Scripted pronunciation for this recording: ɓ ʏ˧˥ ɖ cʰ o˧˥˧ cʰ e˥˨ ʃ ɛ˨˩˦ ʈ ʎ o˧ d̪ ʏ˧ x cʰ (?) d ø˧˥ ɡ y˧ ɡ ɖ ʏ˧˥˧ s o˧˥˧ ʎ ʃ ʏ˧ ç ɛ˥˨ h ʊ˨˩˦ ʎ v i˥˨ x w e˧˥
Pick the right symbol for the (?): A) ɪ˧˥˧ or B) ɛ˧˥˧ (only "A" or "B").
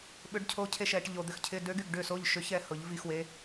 A